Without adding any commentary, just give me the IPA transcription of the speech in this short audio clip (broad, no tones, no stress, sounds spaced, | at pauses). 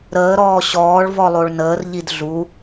ɾ əː ɾ ɔː ɕ ɔː ɭ v ɔ lˠ o ɭ n əː r ʎ i d ɮ u